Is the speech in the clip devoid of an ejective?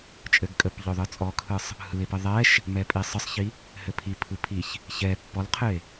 no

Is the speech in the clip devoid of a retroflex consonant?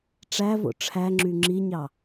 no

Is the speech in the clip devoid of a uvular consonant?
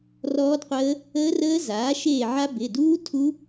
no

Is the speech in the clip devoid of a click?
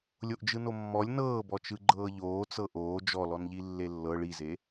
no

